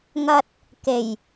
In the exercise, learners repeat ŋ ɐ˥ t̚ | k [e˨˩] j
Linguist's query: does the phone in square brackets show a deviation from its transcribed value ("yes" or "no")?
no